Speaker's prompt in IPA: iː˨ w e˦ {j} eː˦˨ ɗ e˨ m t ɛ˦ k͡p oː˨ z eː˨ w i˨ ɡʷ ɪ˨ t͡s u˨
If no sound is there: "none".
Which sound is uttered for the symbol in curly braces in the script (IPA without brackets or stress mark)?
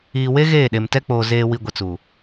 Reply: ɣ